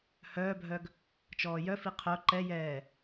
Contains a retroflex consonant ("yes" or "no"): no